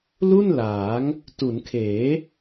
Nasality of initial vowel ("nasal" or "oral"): oral